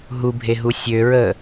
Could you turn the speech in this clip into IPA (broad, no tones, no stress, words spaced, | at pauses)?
ɦubʱeɦu sʲø ɹə